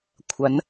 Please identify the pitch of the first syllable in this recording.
rising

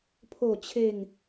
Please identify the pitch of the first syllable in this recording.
falling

